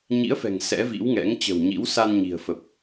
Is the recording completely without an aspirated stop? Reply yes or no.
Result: yes